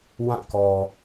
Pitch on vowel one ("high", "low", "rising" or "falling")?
falling